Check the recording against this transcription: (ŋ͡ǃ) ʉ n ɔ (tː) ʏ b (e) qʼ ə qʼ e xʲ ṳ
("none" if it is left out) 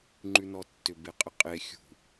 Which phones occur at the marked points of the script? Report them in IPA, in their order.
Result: ŋ͡ǃ, tː, e

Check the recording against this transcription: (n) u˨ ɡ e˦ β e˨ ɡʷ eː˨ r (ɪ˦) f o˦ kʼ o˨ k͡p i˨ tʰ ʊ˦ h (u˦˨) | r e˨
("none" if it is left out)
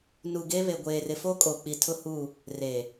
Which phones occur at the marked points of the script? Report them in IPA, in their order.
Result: n, ɪ˨, u˦˨

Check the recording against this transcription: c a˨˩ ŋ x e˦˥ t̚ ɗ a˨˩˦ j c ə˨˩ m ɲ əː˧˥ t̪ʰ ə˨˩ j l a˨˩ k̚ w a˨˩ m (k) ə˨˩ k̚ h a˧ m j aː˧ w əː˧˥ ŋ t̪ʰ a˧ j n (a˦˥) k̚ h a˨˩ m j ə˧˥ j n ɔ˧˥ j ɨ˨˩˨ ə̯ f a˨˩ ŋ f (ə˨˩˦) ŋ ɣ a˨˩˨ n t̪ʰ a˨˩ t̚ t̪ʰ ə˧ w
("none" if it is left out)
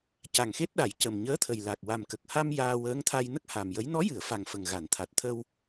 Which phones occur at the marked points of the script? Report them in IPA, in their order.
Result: k, ə˦˥, ə˨˩

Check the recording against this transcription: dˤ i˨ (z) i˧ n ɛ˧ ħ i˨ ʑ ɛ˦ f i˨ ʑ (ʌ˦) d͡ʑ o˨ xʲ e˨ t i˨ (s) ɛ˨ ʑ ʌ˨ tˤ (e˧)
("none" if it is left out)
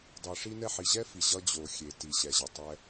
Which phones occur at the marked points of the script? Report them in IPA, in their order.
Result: ʂ, ʌ˦, ɕ, ɛ˧

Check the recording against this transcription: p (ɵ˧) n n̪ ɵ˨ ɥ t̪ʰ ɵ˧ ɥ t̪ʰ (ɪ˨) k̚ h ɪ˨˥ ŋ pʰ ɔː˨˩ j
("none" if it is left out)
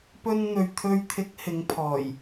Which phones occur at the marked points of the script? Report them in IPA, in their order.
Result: ɵ˧, ɪ˨˥

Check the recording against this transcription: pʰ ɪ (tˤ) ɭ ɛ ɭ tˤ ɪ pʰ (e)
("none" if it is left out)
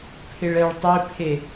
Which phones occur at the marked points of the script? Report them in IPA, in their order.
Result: none, e

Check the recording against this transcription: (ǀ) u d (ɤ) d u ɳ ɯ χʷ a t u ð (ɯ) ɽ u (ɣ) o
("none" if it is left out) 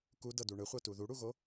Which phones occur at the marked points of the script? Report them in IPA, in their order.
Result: k, ɤ, u, ɣ

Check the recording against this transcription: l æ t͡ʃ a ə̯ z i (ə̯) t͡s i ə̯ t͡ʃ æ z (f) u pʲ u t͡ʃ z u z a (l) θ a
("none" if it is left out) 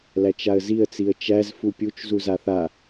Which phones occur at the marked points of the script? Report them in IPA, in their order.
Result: ə̯, f, none

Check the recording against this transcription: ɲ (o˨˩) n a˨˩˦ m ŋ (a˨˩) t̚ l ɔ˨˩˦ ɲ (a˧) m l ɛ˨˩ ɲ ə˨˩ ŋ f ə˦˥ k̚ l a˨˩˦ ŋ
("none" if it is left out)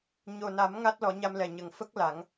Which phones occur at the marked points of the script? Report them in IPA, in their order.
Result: o˨˩, a˦˥, a˧

